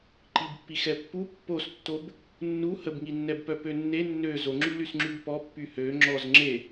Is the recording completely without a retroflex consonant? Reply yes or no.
yes